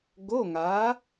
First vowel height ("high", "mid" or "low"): mid